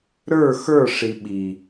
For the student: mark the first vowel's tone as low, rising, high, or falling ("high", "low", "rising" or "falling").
falling